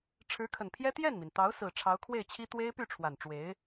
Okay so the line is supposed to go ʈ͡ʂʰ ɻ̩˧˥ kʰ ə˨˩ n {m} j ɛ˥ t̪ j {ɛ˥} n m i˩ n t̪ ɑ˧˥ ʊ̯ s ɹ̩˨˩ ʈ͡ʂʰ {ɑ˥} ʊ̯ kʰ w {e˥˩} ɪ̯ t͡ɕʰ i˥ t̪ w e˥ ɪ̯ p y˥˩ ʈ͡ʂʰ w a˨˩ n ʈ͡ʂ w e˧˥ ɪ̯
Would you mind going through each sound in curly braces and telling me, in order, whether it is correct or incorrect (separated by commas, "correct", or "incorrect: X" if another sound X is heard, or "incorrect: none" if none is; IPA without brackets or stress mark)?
incorrect: pʰ, incorrect: ɛ˥˩, incorrect: ɑ˧˥, correct